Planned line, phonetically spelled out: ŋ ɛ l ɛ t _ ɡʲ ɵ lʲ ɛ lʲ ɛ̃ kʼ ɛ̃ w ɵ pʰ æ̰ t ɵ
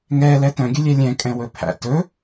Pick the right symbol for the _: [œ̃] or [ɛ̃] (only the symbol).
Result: œ̃